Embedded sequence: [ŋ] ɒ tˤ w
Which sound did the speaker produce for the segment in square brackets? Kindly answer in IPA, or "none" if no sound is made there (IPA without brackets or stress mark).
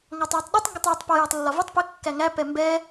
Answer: ŋ